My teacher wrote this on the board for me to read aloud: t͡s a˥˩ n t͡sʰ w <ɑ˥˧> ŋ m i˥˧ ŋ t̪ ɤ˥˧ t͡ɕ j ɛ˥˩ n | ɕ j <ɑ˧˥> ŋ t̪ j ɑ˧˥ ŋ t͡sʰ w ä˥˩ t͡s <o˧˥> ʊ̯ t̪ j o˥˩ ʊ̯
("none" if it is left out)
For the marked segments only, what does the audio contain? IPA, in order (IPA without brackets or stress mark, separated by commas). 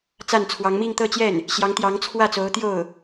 ɑ˧˥, ɑ˧˥, o˧˥